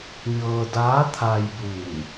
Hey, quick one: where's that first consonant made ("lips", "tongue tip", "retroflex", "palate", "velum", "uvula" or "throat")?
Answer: palate